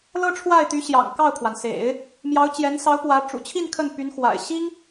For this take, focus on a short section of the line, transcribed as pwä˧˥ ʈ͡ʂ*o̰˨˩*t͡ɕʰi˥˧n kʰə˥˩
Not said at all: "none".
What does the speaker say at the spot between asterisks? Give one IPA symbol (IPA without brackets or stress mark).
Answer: ṵ˨˩